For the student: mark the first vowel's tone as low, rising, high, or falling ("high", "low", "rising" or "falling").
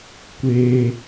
high